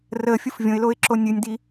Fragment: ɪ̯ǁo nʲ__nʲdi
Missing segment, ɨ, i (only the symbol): ɨ